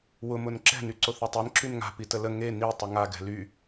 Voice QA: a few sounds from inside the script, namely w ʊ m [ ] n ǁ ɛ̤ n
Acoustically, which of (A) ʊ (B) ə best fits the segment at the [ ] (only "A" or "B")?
A